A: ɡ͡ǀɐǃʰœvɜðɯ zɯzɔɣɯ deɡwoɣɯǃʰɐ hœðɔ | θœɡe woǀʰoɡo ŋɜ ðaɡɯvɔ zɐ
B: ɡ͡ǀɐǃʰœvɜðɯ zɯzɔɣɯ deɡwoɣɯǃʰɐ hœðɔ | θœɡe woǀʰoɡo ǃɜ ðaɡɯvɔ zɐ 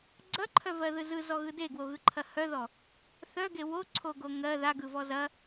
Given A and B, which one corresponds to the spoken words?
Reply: A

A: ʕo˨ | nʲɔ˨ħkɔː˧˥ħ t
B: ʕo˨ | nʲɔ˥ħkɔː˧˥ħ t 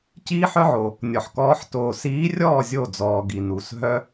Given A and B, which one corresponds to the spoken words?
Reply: A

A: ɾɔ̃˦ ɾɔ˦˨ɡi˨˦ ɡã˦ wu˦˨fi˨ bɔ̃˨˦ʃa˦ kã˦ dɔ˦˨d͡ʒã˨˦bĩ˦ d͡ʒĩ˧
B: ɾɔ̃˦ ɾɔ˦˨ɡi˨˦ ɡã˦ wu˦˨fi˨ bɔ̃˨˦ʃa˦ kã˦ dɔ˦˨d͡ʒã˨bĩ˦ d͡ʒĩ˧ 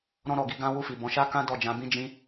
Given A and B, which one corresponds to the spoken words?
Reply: A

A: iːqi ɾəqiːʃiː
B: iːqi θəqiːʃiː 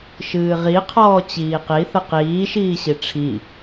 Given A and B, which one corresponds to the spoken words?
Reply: B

